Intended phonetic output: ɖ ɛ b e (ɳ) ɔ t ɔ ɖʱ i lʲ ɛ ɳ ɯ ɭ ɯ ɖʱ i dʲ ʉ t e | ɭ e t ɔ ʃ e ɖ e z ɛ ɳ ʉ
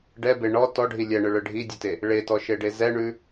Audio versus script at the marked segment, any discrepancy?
no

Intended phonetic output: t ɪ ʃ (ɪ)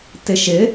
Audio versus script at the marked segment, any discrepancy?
no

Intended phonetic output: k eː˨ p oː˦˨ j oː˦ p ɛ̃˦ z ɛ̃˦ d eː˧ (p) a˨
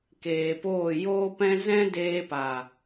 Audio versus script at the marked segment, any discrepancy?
no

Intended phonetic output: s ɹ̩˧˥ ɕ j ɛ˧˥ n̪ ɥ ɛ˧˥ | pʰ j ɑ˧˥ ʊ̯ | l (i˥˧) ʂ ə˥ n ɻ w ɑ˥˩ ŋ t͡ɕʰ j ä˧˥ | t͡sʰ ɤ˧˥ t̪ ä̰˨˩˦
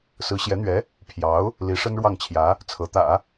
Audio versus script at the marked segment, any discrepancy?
yes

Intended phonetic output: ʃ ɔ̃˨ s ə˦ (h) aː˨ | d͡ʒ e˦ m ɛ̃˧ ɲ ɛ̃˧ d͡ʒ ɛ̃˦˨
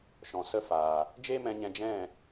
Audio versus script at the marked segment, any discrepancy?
yes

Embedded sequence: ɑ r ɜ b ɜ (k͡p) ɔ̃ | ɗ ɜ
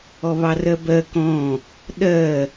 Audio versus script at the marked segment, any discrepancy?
yes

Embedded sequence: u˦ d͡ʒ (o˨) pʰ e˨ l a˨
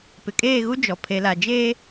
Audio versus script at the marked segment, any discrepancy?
yes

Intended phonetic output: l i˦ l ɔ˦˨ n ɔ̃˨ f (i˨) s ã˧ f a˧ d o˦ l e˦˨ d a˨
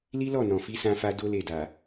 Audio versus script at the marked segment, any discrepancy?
yes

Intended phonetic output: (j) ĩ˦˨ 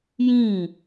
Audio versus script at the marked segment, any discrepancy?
no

